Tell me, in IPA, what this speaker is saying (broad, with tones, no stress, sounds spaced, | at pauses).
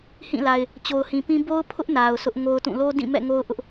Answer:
h ĩ˦˨ l a˨ ɪ̯ | t͡ɕ o˨ ʊ̯ h ĩ˨ p ĩ˦ b o˦ ʊ̯ pʰ ʊ˦ ʔ n a˨ ʊ̯ s ʊ˦ ʔ ŋ o˦ ʊ̯ t ũ˦˨ l o˦ d ĩ˦˨ m ɛ̰˦˨ ŋ o˦ ʊ̯ ʔ ʊ˦ ʔ